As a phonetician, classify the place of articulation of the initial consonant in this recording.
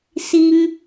alveolar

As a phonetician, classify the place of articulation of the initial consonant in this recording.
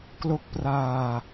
velar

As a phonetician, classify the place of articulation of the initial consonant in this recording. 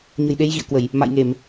palatal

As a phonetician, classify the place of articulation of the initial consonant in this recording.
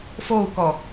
labial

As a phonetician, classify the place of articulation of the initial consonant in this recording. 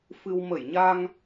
labial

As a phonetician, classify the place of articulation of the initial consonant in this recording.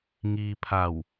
velar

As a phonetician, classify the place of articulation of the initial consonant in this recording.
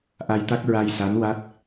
glottal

